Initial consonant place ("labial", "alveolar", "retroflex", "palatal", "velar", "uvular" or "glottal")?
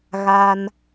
velar